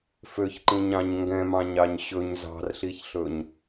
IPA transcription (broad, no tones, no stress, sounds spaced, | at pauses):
f ø ç ǃ ĩ ɲ ɑ̃ ɲ ŋ ɡ ɛ̃ m ɑ̃ ɲ ɑ ɲ ɕ ɵ ɲ z ɑ̤ r ɬ i ç ɬ ɵ ɲ